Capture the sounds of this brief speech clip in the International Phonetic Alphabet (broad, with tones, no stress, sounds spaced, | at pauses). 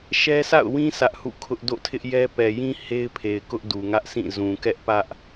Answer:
ʃ ɛ˦ sʰ a̰˦˨ ʊ̯ w ĩ˦ sʰ ä˦ ʔ h ṵ˦˨ kʰ ʊ˦ ʔ d o̰˦˨ tʰ ɪ˦ ʔ j ɛ˦ p ɛ˨ j ĩ˦ h e˦ ɪ̯ pʰ e˨ ɪ̯ k ʊ˦ ʔ d u˨ ŋ ä˦ ʔ s ĩ˦˨ z ũ˨ k ɛ˦ ʔ p ä˦ ʔ